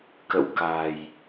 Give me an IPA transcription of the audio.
kə̰˧˨wka˨˩j

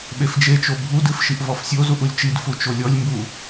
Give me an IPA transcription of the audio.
ɓefd͡ʒet͡ʃo bʱudɨf ʃiʔvɔfsʲozuʔ ulʲt͡ʃidfu t͡ʃolʲɔlʲmbu

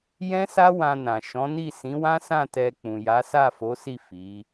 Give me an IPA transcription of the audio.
jɛ̃˦sa˦ wã˧nã˨ ʃɔ̃˨˦ni˦˨ sĩ˨˦wã˦sã˦˨ tɛ˧k͡pũ˨ja˨˦ sa˦˨fo˨˦si˦˨ fi˨˦

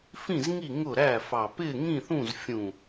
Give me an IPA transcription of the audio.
fĩ˥˨zŋi˥˨ ŋʊ˥˨ɾæ˥˨fɑ˧˩ pɪː˥˨ŋĩ˥˨θũ˥˨z fʲũ˧˩

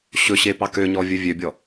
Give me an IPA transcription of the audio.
ɕɵɕepɑ køɲɔvʲɵ vʲøbʲɔ

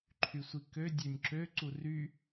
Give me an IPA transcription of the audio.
ǃʰysʷikø dʲønʲǁø ǀury

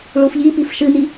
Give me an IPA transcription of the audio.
ɭufʎipif ʃɨn̪i

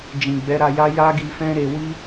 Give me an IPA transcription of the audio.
d͡ʒĩ˨ɡ͡bɛ˨˦ ɾa˧ja˦ ja˦ɡi˧fɛ̃˦ ɾe˧wi˦

